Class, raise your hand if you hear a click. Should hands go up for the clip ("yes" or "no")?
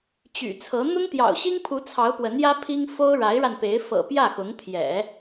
no